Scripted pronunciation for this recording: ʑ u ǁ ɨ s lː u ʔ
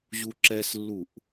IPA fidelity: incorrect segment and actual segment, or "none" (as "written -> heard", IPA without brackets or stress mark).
ɨ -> ɛ